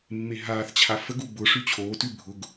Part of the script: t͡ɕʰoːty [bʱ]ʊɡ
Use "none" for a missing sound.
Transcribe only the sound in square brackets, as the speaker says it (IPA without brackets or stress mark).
bʱ